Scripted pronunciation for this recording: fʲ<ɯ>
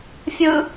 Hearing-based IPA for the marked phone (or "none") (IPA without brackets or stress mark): ɯ